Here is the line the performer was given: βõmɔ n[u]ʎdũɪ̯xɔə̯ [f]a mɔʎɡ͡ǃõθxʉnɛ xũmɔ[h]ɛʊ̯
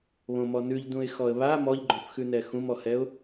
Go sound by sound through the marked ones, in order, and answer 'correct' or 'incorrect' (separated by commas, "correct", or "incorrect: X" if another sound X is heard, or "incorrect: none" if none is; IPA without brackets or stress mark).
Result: incorrect: ʉ, incorrect: β, correct